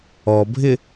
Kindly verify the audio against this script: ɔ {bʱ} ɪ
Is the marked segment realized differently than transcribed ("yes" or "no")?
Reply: no